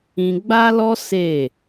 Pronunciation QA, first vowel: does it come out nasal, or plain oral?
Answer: nasal